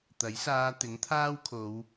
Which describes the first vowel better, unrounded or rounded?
unrounded